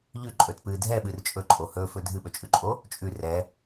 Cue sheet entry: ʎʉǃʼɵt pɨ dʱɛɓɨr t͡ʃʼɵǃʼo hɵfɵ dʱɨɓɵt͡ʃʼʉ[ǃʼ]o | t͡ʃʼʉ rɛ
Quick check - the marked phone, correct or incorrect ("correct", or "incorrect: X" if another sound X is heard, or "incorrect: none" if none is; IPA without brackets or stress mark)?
correct